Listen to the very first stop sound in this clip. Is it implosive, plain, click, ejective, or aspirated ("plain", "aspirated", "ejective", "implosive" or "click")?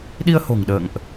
implosive